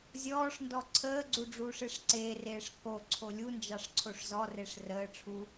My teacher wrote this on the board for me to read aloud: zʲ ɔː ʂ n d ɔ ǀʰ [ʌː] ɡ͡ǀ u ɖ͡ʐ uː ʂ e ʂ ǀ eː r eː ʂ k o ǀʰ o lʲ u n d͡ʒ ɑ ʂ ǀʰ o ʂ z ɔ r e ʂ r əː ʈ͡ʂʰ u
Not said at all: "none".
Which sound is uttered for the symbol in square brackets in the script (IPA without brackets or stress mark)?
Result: əː